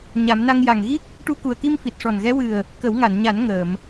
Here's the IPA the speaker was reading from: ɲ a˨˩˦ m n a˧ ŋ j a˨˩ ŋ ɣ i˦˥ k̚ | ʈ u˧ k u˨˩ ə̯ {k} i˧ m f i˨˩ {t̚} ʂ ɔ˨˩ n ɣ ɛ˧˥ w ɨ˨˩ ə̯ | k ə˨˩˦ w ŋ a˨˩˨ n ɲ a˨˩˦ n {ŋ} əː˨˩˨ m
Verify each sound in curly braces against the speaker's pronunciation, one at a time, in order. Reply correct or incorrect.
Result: correct, correct, correct

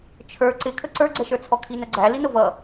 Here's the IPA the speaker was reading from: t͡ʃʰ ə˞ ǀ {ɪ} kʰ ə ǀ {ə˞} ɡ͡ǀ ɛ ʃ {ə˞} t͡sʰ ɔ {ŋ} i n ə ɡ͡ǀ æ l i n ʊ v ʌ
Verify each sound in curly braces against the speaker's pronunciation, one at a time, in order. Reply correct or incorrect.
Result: correct, correct, correct, incorrect: kʰ

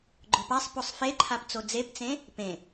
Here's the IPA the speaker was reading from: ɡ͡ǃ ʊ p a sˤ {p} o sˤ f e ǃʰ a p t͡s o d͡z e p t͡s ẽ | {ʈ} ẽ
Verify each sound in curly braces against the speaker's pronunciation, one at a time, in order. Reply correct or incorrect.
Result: correct, incorrect: p

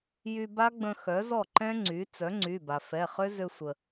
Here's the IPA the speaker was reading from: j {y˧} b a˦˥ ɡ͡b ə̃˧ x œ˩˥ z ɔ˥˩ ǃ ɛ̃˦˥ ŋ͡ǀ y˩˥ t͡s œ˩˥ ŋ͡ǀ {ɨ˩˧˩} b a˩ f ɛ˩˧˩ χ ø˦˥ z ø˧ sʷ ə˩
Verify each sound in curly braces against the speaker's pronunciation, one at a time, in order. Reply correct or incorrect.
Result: correct, incorrect: y˩˧˩

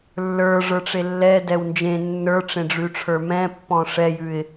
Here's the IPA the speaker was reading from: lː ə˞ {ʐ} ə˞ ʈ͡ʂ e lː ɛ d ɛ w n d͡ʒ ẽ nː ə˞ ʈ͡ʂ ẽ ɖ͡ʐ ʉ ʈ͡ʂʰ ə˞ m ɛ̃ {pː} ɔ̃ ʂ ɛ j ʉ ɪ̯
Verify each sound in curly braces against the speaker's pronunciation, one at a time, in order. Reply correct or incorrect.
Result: correct, correct

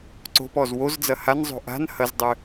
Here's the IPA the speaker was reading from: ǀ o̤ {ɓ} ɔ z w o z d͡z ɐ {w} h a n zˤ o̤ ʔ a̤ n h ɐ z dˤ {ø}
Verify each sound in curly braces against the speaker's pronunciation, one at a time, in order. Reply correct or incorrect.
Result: incorrect: p, incorrect: none, correct

